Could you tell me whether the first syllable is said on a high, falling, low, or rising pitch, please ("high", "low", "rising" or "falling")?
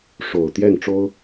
low